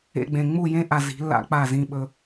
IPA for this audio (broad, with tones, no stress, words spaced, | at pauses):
ḛ˧ ɡ͡bẽ˧ ŋ͡mu˦˨jẽ˦ ʔa˧zi̤˨˦lːa̰˦k͡pa˦˨ zĩ˧ɓɵ˧